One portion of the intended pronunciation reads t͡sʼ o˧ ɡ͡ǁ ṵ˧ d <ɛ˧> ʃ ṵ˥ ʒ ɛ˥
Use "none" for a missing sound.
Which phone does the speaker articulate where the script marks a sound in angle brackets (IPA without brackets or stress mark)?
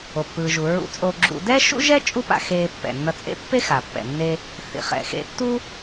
ɛ˥